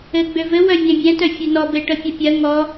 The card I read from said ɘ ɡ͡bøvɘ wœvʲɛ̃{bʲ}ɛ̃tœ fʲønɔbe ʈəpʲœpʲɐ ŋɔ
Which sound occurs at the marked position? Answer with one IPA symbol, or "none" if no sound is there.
bʲ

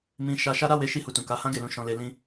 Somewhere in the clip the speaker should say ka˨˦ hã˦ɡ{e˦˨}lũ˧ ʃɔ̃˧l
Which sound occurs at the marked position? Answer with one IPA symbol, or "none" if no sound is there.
e˦˨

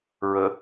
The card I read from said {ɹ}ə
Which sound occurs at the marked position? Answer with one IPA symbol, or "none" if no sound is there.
ɹ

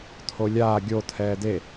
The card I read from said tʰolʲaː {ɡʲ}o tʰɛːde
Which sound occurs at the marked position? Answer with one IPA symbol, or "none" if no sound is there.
ɡʲ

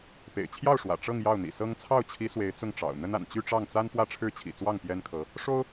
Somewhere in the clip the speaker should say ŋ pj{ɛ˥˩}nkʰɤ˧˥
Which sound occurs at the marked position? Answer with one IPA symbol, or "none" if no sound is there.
ɛ˥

